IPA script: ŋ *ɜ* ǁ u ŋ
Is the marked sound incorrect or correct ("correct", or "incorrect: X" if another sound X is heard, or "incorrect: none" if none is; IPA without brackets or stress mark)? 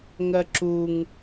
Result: correct